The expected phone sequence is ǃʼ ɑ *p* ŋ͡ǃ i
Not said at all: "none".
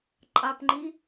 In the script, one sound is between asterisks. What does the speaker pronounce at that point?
p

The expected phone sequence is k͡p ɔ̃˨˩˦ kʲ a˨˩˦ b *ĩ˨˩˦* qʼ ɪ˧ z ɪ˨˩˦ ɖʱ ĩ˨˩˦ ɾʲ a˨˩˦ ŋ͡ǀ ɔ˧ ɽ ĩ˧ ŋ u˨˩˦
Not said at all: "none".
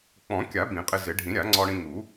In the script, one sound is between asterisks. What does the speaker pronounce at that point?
ĩ˨˩˦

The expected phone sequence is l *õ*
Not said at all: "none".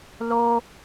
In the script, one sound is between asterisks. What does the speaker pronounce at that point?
o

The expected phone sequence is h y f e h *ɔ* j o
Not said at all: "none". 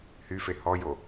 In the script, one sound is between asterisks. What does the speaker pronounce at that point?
ɔ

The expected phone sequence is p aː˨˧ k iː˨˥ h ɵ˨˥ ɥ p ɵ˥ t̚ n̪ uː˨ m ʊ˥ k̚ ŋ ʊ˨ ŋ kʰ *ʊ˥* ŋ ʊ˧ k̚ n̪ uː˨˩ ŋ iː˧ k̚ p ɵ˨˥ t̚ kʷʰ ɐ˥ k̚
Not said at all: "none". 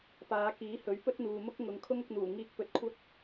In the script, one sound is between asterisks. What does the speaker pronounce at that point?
ʊ˥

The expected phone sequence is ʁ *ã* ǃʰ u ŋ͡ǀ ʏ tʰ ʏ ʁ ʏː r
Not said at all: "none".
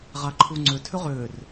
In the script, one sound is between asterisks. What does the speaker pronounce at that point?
a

